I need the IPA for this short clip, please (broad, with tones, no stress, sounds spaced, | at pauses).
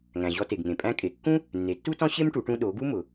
ŋ æ̃˩ ʑ ɔ˧ t e˩ ɡ ŋ ẽ˩ pʼ æ̃˧ kʼ e˩ kː ũ˥ | nː e˩˧ tː u˥ t ɔ̃˥ ɕ e˥ m ʈ u˩˧ ʈ ũ˧ ɗ o˩˧ ɡ u˥ m ʊ˩